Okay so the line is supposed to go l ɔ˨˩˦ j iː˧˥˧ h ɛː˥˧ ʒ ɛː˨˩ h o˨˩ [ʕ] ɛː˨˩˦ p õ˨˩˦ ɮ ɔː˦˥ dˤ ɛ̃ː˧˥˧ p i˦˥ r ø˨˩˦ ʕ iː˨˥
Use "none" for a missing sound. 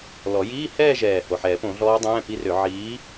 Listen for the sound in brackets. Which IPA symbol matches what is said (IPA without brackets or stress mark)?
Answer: ħ